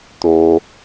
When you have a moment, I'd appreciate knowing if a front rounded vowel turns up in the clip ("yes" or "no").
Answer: no